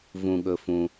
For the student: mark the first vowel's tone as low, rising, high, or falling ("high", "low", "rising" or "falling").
low